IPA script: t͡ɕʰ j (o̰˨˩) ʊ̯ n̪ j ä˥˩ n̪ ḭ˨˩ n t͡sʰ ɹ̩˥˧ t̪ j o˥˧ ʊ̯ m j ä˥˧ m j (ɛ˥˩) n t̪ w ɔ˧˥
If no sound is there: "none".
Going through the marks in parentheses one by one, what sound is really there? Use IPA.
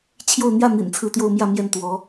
o˥˧, ɛ˥˩

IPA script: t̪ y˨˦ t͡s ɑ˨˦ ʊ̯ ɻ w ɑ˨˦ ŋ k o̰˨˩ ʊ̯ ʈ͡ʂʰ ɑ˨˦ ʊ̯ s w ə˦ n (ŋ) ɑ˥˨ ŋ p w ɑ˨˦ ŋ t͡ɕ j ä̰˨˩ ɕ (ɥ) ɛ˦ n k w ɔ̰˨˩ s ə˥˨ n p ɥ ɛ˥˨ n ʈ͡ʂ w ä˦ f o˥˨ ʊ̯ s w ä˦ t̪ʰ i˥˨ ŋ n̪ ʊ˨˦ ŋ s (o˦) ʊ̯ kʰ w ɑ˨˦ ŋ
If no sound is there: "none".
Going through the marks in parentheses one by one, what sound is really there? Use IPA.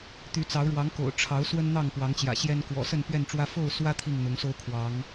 n̪, j, o˦

